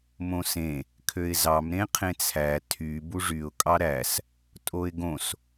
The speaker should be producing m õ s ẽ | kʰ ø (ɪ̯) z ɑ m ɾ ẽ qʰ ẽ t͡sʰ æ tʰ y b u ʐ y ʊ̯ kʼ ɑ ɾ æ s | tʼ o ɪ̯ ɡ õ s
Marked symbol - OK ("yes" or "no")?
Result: yes